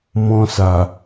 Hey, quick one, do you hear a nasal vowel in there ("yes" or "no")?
yes